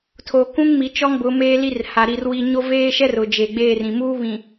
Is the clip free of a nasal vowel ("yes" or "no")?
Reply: no